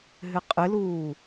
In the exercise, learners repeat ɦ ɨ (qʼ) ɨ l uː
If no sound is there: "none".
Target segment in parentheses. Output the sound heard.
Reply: qʼ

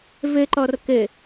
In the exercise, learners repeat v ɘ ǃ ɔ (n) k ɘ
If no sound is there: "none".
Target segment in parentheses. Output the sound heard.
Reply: r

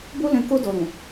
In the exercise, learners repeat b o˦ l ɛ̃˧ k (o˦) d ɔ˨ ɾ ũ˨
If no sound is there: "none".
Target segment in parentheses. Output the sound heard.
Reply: o˧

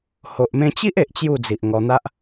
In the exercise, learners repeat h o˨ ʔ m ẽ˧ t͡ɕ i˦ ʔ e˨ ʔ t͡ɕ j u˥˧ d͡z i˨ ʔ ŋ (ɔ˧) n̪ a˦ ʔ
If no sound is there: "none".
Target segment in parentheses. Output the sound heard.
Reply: ɔ˧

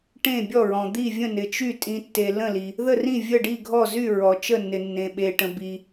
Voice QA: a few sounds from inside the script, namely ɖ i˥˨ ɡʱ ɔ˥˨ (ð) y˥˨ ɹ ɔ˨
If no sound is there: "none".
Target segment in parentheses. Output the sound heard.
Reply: z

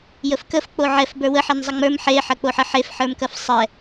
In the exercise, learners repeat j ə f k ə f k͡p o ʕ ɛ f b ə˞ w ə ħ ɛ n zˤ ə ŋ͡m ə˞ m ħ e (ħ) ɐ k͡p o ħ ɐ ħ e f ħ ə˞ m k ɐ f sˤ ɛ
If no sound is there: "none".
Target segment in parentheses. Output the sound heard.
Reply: ħ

